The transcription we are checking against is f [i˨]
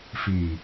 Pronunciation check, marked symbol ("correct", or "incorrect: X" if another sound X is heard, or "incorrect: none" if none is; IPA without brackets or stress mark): correct